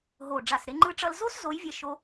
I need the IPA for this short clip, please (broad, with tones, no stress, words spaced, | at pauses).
ɦo˨˩ ɖ͡ʐa˨˩sɾe˧ ŋ͡ǃɯ˧ʈ͡ʂʌ˧lzo˥s zo˧˥jvʲɛ˧ ʃo˧